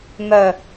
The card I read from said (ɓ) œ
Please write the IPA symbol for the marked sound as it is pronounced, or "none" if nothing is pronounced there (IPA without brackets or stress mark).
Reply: m